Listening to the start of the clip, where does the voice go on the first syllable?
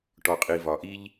low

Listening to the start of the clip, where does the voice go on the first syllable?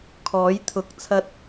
rising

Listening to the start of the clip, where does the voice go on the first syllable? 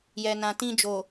low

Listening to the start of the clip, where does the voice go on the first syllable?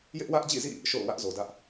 high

